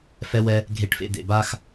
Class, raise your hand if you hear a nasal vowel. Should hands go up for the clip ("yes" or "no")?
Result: no